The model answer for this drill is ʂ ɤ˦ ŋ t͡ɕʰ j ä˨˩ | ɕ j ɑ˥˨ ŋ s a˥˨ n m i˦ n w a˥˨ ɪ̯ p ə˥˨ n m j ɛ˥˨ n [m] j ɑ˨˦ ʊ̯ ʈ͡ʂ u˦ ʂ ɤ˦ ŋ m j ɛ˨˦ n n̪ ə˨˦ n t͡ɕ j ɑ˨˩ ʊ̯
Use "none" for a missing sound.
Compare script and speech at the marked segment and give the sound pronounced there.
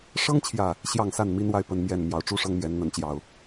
m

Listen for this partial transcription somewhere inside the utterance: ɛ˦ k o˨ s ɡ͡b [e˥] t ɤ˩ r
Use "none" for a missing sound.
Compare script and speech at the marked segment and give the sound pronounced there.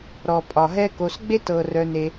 e˦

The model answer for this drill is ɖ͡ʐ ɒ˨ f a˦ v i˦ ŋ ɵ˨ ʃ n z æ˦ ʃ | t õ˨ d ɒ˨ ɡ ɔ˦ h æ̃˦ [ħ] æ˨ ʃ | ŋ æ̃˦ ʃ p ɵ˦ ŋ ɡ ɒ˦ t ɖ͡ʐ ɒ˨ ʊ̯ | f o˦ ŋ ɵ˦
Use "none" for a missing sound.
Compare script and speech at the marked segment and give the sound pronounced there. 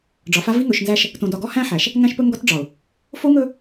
ħ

